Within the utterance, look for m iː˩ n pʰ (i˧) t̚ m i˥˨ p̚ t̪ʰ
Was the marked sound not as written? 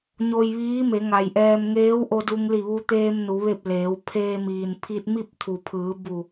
no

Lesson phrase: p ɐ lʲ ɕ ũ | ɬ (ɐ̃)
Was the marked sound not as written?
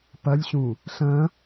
no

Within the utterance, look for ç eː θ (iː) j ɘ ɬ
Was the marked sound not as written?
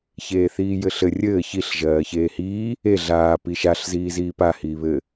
no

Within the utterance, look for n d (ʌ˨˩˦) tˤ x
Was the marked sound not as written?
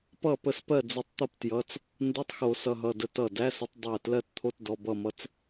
yes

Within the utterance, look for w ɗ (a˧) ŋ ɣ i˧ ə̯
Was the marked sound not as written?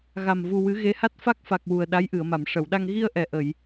no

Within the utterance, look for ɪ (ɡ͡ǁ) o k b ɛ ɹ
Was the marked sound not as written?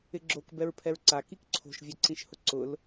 no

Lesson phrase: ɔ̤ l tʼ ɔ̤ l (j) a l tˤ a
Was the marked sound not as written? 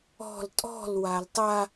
yes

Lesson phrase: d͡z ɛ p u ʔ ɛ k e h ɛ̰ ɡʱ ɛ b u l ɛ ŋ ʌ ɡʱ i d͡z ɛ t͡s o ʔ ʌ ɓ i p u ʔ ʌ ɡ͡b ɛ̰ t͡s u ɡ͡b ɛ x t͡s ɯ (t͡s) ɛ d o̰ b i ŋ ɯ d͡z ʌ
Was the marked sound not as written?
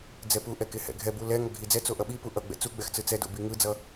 no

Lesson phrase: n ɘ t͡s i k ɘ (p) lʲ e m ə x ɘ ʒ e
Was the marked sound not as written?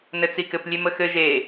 no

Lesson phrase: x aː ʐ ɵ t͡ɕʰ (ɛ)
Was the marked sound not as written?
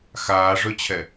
no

